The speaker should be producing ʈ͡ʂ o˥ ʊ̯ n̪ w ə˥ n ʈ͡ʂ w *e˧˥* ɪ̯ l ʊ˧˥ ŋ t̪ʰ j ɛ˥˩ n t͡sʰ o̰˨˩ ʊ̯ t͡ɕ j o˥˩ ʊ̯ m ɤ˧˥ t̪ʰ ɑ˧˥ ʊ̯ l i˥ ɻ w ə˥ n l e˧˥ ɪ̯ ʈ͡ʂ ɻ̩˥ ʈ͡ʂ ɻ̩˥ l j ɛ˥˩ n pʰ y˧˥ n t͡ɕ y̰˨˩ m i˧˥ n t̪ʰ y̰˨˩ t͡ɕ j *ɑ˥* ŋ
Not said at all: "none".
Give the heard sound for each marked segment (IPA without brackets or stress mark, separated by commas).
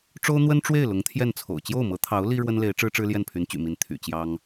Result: e˥˩, ɑ˥